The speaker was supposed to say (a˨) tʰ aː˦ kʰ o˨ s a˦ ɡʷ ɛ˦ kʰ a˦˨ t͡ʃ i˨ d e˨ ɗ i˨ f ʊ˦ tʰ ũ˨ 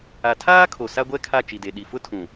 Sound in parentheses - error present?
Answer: no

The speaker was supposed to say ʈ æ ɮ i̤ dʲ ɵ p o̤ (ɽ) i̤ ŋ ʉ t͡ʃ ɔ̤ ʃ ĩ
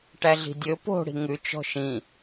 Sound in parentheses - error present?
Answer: no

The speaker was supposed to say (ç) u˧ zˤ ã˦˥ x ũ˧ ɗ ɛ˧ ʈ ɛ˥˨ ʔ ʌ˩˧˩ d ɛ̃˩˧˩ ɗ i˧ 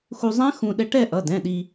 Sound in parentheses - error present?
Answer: yes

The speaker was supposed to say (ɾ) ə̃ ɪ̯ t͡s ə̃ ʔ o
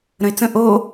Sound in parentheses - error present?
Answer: no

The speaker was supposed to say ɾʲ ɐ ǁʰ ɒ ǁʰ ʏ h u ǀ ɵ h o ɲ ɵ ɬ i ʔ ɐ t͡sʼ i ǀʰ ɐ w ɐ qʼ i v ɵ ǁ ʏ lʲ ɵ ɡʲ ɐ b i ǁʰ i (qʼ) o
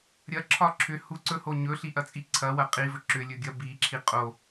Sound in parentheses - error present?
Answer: no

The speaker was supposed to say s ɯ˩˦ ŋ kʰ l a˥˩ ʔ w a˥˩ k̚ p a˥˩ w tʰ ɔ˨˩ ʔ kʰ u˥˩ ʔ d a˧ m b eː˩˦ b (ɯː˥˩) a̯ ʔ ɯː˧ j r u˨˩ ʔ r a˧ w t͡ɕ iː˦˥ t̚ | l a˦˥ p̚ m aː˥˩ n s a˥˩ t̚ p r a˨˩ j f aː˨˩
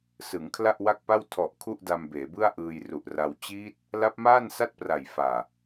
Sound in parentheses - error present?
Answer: yes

